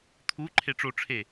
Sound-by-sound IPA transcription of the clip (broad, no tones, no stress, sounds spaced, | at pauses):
t̪ʰ u ǃʰ e ʈ͡ʂ o ʈ͡ʂʰ e